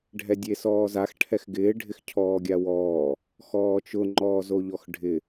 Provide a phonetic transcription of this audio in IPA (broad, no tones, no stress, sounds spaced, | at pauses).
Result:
ɖʱ ɛ dʲ e s ɔː z a x ʈʰ ɛ x ɡ ɪː ɖʱ ɪ x cʰ ɔː ɡʲ a w ɔː | x ɔː t͡ʃ ʊ ŋ͡ǃ ɔː z o ʎ ɔ x ɖʱ ɪ